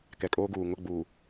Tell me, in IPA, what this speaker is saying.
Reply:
k ɛ˨ kʼ oː˦ ɡ uː˨ ŋ ʊ˦˨ ɡ͡b uː˨

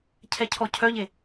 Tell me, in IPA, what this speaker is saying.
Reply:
cʰ ɛ cʰ ɔ cʰ œ ʎ e

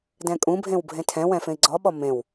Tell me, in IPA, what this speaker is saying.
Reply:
d ɛ̃ kʼ ũ bʱ ẽ w bʱ ẽ tʰ ɛ̃ w ɛ̃ f ẽ i̯ ɡ͡ǀ ɔ ɓ ɔ m ẽ w

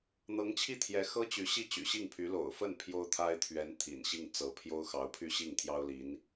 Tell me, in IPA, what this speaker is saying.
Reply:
n̪ ɤ˧˥ ŋ t͡ɕʰ i˥˩ t̪ʰ j ɛ˧˥ x ɤ˥ t͡ɕ y˧˥ ɕ i˥˩ t͡ɕ y̰˨˩ ɕ i˥˩ ŋ pʰ y˧˥ l o̰˨˩ ʊ̯ f ə˥˩ n pʰ j o˥ ʊ̯ t̪ʰ a˥ ɪ̯ t̪ʰ ɥ ɛ˧˥ n t̪ʰ ḭ˨˩ n ɕ i˥˩ ŋ t͡s ɤ˧˥ pʰ j o˥ ʊ̯ x ɑ˧˥ ʊ̯ pʰ y˥˧ ɕ i˥˩ ŋ t̪ʰ j ɑ˥ ʊ̯ l i˧˥ n

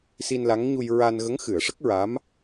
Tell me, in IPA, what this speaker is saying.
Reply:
s i˧ n l a˧˥ ŋ ɲ u˧ j ɹ a˧ n ɣ ə˧˥ ŋ x ɨ˨˩˨ ə̯ ʂ ə˦˥ k̚ ɹ a˧˥ m

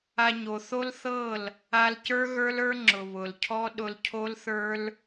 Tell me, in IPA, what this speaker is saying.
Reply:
a˧ ɲ o˨ θ o˦ l θ ɤ˦˨ l | a˧ l c ə˞˦ ɣ ə˞˦ l ə˞˦ ŋ͡ǁ ʊ˨ β ʊ˨ l cʰ ɔ˦ ɗ ʊ˧ l cʰ o˦ l θ ə˞˦ l

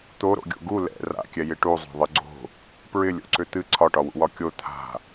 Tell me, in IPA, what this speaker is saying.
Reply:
t̪ o ɾ o̰ ɡʲ o̰ ɡ u l ɛ̰ r a̰ kʲ ɛ j ɪ ʈ u zˤ o̤ ðˤ ɨ ɡ͡ǀ o̤ | p ɹ ɪ lʲ o̰ ǀ ʏ t̪ ɨ ǀʰ ɒ ʈ ɒ w ṵ w ɒ kʲ o t̪ʰ a̤

